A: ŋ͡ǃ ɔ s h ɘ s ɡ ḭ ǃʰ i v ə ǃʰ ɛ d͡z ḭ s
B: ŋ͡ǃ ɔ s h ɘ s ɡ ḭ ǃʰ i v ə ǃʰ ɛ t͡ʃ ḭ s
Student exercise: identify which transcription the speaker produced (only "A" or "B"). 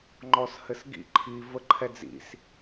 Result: A